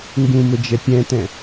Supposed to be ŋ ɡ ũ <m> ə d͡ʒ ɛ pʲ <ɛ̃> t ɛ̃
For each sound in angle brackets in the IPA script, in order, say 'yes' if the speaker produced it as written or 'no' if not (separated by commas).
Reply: yes, yes